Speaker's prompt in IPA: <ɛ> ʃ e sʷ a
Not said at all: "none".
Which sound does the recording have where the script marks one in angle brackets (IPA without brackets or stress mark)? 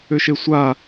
ʏ